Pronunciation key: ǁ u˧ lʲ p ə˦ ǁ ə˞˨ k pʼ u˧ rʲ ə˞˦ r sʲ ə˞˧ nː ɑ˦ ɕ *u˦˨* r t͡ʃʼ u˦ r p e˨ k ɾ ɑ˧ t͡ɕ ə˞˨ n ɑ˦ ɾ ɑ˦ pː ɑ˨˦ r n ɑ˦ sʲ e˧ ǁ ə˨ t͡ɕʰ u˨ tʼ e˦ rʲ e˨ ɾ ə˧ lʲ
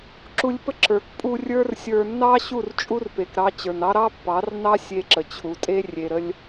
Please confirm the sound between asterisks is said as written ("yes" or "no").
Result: yes